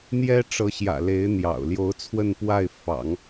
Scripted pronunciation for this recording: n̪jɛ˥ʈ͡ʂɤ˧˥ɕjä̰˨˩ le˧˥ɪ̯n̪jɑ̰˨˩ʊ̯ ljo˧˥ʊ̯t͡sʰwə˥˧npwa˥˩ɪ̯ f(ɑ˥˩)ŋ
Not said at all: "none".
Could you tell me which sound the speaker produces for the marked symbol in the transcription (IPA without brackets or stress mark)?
ɑ̰˨˩˦